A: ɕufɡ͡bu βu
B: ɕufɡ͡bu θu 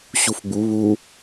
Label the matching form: A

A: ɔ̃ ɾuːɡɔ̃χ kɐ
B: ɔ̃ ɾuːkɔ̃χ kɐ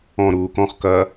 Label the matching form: B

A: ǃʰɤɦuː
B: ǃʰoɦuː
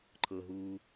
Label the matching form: A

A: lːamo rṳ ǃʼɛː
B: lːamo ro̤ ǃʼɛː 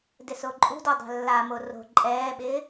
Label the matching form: B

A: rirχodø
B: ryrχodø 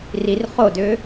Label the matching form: A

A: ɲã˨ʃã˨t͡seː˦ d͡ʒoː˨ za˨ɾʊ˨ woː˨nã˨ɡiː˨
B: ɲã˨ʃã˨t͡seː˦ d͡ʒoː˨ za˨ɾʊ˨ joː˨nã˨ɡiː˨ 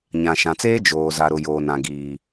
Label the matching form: B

